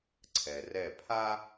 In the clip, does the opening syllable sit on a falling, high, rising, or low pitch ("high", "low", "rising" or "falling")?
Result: low